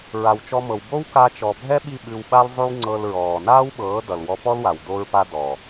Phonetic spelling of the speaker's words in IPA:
ɹ a˨ w t͡ʃ ɔ˧ m ɤ˨ w b o˦ w k a˧ t͡ʃ ɔ˨ bʱ ɛ˦ ɓ i˦˨ ɓ ʉ˧ w ɓ a˦ l zˤ ʉ˦ w ŋ͡ǀ ɤ˧ l ɹ ɔː˨ n aː˦ w ɓ ɤː˨˦ d ʌ˨ l w ɔ˧ p ɔ˦ l w a˨ w d o˧ ɹ p a˧ d ɔ˨

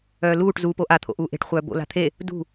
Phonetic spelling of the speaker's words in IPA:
œː l uː ʈ z uː p o ʔ a t̪ʰ o̰ ʔ uː ʔ e̤ ʈ χʷ œː b o̰ l a̤ t̪ʰ e | d ṳ

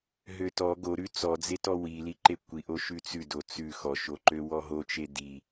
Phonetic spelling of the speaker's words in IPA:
ɦ ø t ɔ ɡ o ɾ ʉ t͡s ɔ d͡z e t ɔ w i l i ǃ e kʷ i ʔ o ʃ ʉ t͡s ʉ d o t͡s ʉ x ɔ ʃ o ǃ ø w ɔ ɦ o t͡ʃ e d i

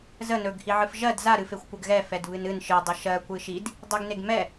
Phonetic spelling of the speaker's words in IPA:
z ə n ɵ ɡ h i ʕ ɨ f ʒ ɜ d z a ɾ ɨ f e xʷ kʷ ɜ ɡ ɣ ɛ f ɛ d β ɨ n ɨ n ʃ ɨ dˤ ə ʃ ɜ kʷ ɨ ʃ i d | dˤ e ɡ n e ɡ m ɛ

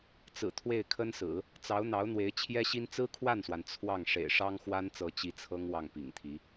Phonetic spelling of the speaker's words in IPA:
t͡s ɹ̩˨˩ t̪ʰ w e˥˩ ɪ̯ kʰ ə˥ n s ɹ̩˨˩˦ | t͡s ɑ˧˥ ʊ̯ n̪ ɑ˧˥ ʊ̯ n̪ w e˧˥ ɪ̯ t͡ɕʰ j ɛ˥ ɕ i˥ n t͡s ɹ̩˥ kʰ w a˥˩ n s w a˩ n t͡sʰ w ɑ˥˩ ŋ ʂ ḛ˨˩ ɪ̯ ʂ ɑ˥ ŋ x w a˥ n t͡s ɤ˧˥ t͡ɕ i˥ t͡sʰ ɤ˥ ŋ w ɑ˥˩ ŋ p ḭ˨˩ ŋ t̪ʰ i˧˥

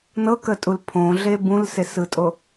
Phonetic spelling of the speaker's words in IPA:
n ɤ k ə tʼ u l pʰ õ ɮ e b ũ l s e s ɯ tʼ o

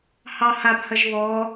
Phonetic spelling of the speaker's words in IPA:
h ɑ h a b h ɐ ʒ β ɔ

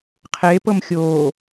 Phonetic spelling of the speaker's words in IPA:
qʰ eː p ɤ m xʲ oː

